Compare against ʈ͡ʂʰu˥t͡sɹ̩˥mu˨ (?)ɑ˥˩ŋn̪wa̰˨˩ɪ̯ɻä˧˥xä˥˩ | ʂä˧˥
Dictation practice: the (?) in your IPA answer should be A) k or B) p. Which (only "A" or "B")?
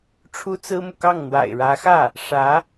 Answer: A